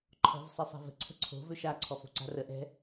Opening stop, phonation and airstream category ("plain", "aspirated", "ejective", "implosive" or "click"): click